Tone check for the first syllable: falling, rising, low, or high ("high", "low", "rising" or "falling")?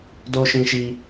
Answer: high